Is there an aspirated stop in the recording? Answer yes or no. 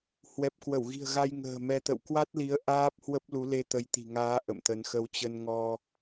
no